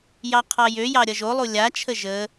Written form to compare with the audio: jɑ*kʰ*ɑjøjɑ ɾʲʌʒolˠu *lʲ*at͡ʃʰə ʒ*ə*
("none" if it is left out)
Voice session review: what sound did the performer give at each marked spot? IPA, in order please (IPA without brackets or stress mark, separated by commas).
qʰ, lʲ, ə